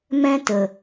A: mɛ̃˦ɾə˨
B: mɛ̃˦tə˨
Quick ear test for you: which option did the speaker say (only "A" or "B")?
B